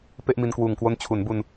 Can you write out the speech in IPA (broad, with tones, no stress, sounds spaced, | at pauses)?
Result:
p e˥˩ ʔ m i˧ n k w uː˨˩ ŋ k w o˦˥ n t͡ɕʰ u˩˦ n b u˧ n